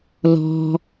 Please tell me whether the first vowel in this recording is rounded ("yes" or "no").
yes